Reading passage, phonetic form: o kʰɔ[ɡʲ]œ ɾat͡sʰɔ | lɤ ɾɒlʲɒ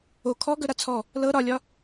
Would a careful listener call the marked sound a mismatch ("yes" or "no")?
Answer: yes